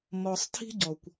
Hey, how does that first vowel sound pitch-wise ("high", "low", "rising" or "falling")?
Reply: low